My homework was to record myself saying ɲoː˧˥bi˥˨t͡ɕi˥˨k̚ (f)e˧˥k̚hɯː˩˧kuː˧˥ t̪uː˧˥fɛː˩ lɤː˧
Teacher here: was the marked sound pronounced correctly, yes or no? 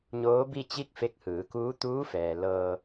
yes